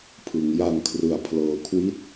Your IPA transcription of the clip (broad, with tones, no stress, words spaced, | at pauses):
pʰɯ˩˦ŋja˧ŋkʰrɯ˨˩a̯ pʰlɤː˨˩kʰwi˥˩t̚